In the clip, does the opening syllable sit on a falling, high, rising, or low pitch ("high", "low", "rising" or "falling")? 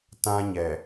high